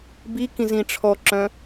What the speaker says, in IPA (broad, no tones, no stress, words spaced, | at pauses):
bikĩ zĩʈ͡ʂʰɔǁœ̃